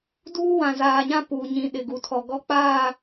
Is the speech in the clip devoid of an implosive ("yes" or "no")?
no